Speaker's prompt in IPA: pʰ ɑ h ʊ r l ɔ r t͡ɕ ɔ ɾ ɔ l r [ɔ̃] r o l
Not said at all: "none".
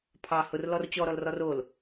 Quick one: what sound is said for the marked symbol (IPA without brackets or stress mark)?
ɔ